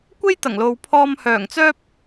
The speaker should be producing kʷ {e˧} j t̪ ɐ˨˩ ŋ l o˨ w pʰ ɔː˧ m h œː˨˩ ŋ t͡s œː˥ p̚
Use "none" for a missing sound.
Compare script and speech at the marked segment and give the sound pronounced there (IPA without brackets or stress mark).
e˥